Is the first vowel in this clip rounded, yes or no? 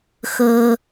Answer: no